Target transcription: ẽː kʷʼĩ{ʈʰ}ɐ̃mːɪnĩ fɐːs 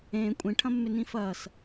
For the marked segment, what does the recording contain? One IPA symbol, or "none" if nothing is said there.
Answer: ʈʰ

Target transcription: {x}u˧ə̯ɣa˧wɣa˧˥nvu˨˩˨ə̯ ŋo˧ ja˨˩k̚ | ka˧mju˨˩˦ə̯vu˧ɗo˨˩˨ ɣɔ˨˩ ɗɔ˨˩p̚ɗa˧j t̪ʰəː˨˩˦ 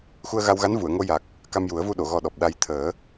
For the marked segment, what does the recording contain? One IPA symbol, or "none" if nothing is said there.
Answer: x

